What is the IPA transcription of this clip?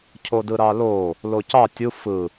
cʰodɯɾɑlo | locɑ tʲu fɯ

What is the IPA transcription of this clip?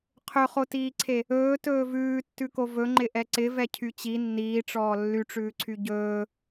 qʰɵχotiːǀʰe | ɵːtɵː vʉːtːʉko vɵŋ͡ǃɪʔɛ ǀɪvɛcʰy t͡ɕi nːiːʈ͡ʂɔː lːyʈ͡ʂʉːǀʰy ɟɵː

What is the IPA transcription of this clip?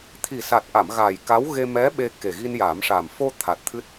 t̪ʰi˨˩sa˨˩t̚ʔa˨˩˨m ɣa˨˩j ka˧˥wɣe˧ mɛ˧˥ ɓe˧ ke˨˩ɣi˧nja˨˩˦mʂa˨˩m fo˧ t̪ʰa˨˩t̚ t̪ʰɨ˦˥t̚

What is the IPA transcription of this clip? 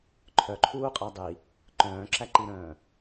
ǃʰœǃʰuːqʼæ dˤi | ǃœ̃ːǁæǃiɾœ̃ː

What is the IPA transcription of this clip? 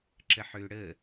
ǁəħøɽə

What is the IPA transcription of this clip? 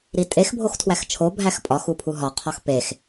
ɾitʼex bʱoxtʰwæxt͡ʃʰo bʱæxpʼɒx upʰuɦɒ qʰɒxpex

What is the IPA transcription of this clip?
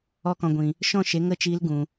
ɔ˧kɔ̃˨ɡʷĩ˨ | ʃɔ̃˦˨ʃe˨˦ ŋə˦˨t͡ʃiː˧l ɡũ˨

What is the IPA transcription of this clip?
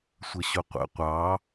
sʷəɕʊqʷə̰ qʷɑ

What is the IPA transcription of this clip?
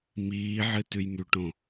miːʕɨ tʉjmʉʈõ

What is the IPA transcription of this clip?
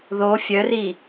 ðo fʲœri

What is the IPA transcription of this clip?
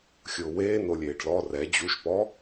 xʲʊːweːnolʲeːɖ lɔ rɛ d͡ʑuʃpɔ

